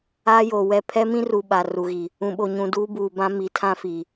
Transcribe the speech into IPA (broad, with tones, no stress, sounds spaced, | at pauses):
aː˦ j oː˨ w ɛ˦˨ pʰ ɛ˦ m ĩ˦ r u˨ ɓ a˨ r u˨ ɣ i˨ | ũ˨ ɓ o˨ ɲ ũ˨ d uː˦ b uː˨ b ã˦ m i˨˦ tʰ ã˦ f i˨